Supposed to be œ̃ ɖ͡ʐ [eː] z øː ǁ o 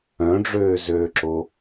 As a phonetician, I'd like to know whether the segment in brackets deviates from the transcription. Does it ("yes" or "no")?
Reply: yes